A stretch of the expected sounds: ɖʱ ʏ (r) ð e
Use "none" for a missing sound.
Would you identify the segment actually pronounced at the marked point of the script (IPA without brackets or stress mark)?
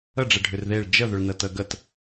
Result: r